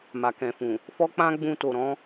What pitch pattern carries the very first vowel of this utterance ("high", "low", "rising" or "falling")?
low